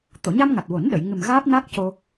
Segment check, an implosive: present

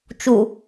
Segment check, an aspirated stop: absent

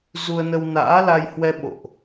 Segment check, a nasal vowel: absent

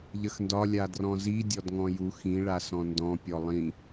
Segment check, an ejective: absent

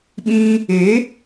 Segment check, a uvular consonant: absent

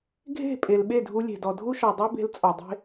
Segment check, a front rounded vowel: absent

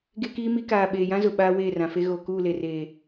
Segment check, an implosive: present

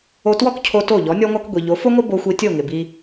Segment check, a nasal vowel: absent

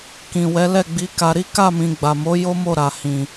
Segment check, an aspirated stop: absent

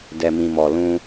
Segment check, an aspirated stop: absent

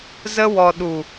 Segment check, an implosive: present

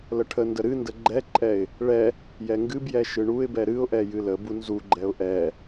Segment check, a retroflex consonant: present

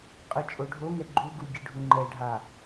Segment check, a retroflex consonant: present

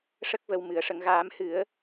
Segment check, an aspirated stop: absent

